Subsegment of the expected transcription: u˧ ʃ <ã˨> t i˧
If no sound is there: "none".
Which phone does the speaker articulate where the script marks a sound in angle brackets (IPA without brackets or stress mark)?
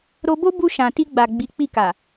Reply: ã˨